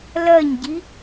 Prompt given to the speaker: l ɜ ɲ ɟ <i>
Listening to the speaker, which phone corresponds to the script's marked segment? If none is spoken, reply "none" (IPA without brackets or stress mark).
i